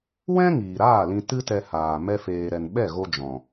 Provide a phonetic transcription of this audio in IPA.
wɛ̃˦ ŋiː˨ɾaː˦˨lĩ˧ tɨ˦tɛ˧ haː˨ mɛ˦feː˧ɾɛ˧n ɓɛ˦˨ɣo˧ d͡ʒɔ̃˨

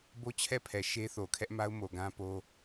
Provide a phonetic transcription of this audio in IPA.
bo˦t͡ɕʰɛ˦˨pʰɛ˨ ʃe˦ θo˨kʰɛ˦ʔma˦ʊ̯ mo˨ɡã˦po˦

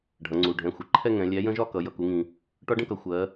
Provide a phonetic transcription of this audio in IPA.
ɖʱʌ˩˧ŋ͡ǀu˩˧˩ ɖʱɛ̃˩˧˩xʷɪ˩˧ǃʰɛ˥˧ ŋɛ̃˩˧ lʲæ˨˥jə̃˦˥ʒɒ˥˧kʌ˩˧ jʌ˩˧˩ku˩˧ŋĩ˩ | ʈɒ˦˥ɖə̃˥˧kʌ˩˧ xʷɜ˩˧

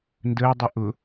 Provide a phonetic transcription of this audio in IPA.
ndəːdˤʊ ʔʊ

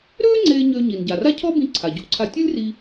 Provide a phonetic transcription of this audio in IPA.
ɾøː˥ ŋ͡ǀeː˧ ɲøː˧ɲi˩nɟa˩ ra˥cʰɔ˥bĩ˧ ǀʰa˩ɟṵ˥ǀʰa˧ tʲɨ˥lʲri˧

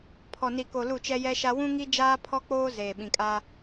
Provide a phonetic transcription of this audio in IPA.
pʰɔ˨ni˨ko˨ lu˦˨t͡ʃɛ˦ jɛ˦ʃa˦ wũ˦ŋi˦ d͡ʒaː˦pʰɔ˦k͡poː˦ zeː˨ɓĩ˨kʼa˦

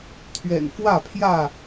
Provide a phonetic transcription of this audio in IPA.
t̪ʰɥɛ̰˨˩nfwä˥˨pʰjä˥˨

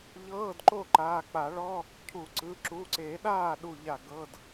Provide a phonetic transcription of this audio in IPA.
ʎɤː˧˥˧dǃo˥˩ ǃaː˩˧˩k͡pa˨˩˦ɭɔ˧˥˧ | cʰu˨˩˦ǀɯ˩˧˩ ǁu˩˧˩ǀe˨˩˦ɗaː˥˩ ɗu˥˧ʎa˥˩ ɡɤ˧˥˧d

